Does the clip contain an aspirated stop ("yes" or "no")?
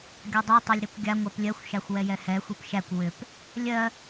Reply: no